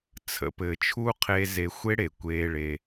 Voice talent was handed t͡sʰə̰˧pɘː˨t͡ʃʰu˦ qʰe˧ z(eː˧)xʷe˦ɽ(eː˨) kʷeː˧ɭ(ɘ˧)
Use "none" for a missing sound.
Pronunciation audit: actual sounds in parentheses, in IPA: e˧, e˨, e˧

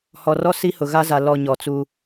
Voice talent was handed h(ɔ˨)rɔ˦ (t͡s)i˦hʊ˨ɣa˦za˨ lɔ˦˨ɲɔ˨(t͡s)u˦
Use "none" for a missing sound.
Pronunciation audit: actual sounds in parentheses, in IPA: ɔ˨, s, t͡s

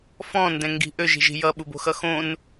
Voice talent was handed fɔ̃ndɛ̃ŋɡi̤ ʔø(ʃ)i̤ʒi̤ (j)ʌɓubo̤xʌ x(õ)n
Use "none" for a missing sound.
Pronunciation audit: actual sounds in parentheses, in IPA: ʒ, j, õ

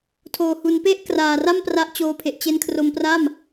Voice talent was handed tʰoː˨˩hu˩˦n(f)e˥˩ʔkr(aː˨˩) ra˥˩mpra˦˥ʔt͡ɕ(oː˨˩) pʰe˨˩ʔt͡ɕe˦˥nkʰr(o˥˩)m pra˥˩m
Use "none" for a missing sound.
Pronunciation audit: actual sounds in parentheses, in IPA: p, aː˨˩, oː˧, o˦˥

